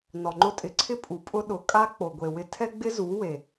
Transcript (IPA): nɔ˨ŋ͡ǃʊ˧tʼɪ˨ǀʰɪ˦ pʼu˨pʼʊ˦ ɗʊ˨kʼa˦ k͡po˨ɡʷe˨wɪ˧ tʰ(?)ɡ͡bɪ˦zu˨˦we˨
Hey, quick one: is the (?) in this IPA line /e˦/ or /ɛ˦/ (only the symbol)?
ɛ˦